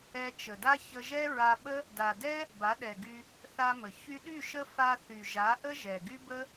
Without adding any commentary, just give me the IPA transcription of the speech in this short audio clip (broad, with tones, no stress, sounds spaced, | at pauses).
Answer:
ɛ˧ t͡ʃ ə˨ d a˦ ç ə˧ ʒ ɛ˦ ɹ a˧ ɓ ə˦ | d a˨ d ɛ˦ | b a˨˦ ɗ ɛ˨ ɡ y˧ | θ a˧ m ə˨ ç y˧ ɗ y˦˨ ʃ ə˦ f a˧ θ y˨ ʒ a˨˦ ʔ ə˦ ʒ ɛ˨ ɡ y˦ b ə˦